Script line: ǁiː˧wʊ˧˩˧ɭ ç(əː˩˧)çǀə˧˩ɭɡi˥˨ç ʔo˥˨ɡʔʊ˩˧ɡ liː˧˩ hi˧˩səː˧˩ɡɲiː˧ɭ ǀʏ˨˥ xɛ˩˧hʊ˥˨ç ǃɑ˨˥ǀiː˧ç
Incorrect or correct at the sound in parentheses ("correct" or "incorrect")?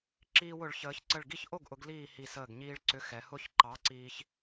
correct